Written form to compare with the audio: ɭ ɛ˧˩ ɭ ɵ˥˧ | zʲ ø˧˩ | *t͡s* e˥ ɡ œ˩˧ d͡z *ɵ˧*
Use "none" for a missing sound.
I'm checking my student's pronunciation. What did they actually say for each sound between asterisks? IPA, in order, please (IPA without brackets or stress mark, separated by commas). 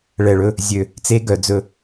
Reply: t͡s, ɵ˧